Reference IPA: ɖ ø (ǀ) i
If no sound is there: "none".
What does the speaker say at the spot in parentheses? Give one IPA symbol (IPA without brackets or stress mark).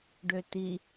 t